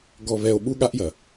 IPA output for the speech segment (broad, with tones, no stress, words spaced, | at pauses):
ɡɔ˨βɛ˨o̯ ɓu˦ɠa˦ʔjɐ˨